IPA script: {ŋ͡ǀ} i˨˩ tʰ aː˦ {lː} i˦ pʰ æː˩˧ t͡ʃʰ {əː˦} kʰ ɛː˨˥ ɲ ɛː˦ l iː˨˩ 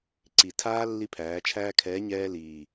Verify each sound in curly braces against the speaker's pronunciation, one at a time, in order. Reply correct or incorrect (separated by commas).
incorrect, correct, incorrect